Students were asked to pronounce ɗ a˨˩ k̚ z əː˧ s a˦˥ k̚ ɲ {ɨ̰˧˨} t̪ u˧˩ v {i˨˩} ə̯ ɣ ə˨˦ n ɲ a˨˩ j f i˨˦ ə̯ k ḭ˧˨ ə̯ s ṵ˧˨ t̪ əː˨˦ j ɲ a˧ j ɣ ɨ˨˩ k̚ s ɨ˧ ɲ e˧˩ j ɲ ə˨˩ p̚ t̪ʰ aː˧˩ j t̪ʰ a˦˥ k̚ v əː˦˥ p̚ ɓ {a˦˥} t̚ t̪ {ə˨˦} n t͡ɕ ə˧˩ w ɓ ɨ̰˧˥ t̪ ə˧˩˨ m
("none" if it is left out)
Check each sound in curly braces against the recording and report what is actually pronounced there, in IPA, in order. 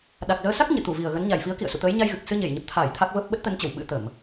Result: ɨ̰˧˨, i˨˩, ə˦˥, ə˨˦

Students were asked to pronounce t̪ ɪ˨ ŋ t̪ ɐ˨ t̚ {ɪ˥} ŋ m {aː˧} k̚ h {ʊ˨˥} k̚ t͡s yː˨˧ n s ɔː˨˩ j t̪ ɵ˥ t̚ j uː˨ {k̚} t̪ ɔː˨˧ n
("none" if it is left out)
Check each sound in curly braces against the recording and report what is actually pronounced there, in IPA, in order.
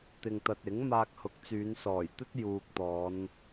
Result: ɪ˨˥, aː˧, ʊ˨˥, k̚

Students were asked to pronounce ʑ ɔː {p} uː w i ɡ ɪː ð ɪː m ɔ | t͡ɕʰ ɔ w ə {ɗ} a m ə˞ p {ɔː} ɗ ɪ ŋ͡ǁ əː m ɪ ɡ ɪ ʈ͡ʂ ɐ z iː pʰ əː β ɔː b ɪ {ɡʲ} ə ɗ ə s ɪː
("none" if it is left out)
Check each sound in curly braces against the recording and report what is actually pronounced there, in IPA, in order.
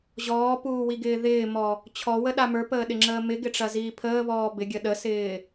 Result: p, ɗ, əː, ɡʲ

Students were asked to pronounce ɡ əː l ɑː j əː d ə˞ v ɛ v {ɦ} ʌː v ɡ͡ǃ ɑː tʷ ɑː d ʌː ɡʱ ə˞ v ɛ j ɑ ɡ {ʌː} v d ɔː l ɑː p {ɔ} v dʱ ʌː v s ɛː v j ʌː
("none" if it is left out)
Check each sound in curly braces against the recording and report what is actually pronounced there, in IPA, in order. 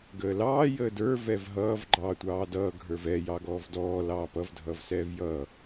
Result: ɦ, ɔː, ʌ

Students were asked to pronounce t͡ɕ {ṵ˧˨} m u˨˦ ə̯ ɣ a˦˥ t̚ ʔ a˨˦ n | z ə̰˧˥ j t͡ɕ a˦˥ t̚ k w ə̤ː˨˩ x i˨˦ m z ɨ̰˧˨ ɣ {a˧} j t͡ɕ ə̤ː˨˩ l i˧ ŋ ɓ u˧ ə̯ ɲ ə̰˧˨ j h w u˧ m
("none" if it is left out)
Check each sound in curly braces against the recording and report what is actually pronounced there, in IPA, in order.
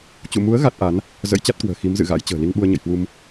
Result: ṵ˧˨, a̰˧˥

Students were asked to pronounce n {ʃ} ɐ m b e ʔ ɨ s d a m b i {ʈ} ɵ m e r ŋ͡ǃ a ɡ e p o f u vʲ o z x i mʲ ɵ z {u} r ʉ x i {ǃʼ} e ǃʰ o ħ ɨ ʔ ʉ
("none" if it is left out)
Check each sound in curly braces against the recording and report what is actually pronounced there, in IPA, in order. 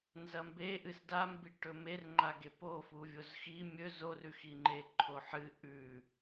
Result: z, ʈ, o, ŋ͡ǃ

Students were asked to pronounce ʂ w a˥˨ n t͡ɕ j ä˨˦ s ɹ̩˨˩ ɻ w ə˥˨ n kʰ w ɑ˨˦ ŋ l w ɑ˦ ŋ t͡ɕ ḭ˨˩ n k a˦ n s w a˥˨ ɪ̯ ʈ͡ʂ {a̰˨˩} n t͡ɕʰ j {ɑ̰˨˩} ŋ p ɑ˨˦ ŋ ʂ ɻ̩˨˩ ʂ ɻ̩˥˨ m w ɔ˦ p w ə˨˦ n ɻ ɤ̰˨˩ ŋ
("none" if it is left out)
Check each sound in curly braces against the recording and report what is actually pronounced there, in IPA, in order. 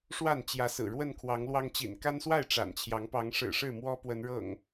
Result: a̰˨˩, ɑ˨˦

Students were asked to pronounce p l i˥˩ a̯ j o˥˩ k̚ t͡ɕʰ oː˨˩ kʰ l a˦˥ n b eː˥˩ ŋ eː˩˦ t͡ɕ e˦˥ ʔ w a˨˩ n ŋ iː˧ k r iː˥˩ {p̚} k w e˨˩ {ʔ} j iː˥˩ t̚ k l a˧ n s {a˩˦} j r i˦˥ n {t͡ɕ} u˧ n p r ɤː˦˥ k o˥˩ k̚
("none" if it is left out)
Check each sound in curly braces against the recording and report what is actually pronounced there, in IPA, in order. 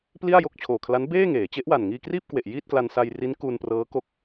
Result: p̚, ʔ, a˧, k

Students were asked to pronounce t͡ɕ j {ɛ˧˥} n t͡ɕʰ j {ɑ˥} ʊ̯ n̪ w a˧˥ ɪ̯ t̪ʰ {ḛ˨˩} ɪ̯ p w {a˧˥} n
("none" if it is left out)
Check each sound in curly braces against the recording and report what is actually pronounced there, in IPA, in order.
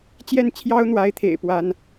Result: ɛ˥˩, ɑ˥, ḛ˨˩, a˧˥

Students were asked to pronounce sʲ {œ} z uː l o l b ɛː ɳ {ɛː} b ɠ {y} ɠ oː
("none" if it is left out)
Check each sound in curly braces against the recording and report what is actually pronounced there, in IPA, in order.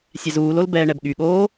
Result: ɛ, ɛ, y

